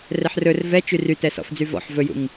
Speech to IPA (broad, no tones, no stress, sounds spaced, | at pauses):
r ɛ ħ r ɵ r v ɛ t͡ʃ y r y t ɛ s ɔ̰ f d͡z y v ɔ̰ ħ v ɵ j ṵ ŋ